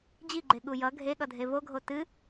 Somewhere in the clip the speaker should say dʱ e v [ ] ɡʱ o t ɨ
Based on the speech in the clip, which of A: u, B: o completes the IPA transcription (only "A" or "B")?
B